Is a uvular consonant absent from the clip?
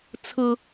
yes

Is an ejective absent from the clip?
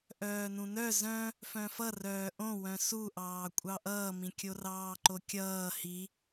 no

